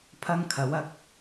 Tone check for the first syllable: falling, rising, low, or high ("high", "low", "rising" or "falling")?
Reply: high